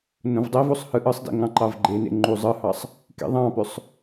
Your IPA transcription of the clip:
n õ v dˤ i v o sˤ h ɯ ʔ ɯ sˤ d ḭ ŋ ɑ̃ ǃ ɑ v ɡ͡ǃ e n ḛ ŋ͡ǃ u zˤ ɯ h ɑ sˤ | k ḭ ðˤ ɑ̃ p ø sˤ

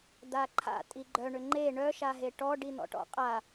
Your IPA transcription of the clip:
d̪ a ǃʰ a̰ tʼ i ɡ͡ǃ œ ɳ ʏ ŋ͡ǃ e ɳ œ ʃ a ɦ e ʈ ɔ ɖ i n̪ ɔ̰ ʈ ɔ̰ qʼ a

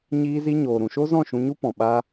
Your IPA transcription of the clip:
ɲ iː˧ z i˧ ɲ oː˨ ɾ ũ˨ ʃ o˦ z ɔ̃˦˨ ʃ ũ˧ ɲ u˦ p ɔ̃˨ ɓ a˧

